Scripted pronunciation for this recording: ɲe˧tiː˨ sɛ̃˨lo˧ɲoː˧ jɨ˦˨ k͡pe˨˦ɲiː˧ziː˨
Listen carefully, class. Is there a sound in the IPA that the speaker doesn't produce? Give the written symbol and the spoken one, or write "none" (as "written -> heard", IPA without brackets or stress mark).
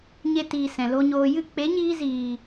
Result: none